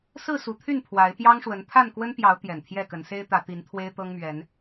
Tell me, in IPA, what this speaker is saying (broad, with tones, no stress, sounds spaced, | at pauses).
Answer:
s ɹ̩˥˨ s u˨˦ t̪ʰ y˥˨ n pʰ w a˨˦ ɪ̯ p j ɑ˦ ŋ ʂ w ə˨˦ n t̪ʰ a˥˨ n k w ə˦ n p j ɑ˨˦ ʊ̯ t̪ j ɛ˨˩ n t̪ʰ j ɛ˥˨ k ə˨˦ n s e˦ ɪ̯ t̪ ä˨˦ t̪ i˨˦ n t̪ʰ w e˦ ɪ̯ t̪ ɤ˦ ŋ m ɥ ɛ˨˦ n